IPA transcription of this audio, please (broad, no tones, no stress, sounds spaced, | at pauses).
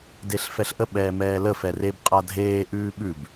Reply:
d e ɬ f ɛ ɬ ʔ ə ɓ ɛː m ɛː l ə f ɛ r e b qʼ a dʱ eː ʔ ʉː ɓ ʉ b